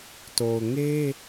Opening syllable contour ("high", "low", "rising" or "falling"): low